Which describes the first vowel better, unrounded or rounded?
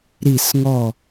unrounded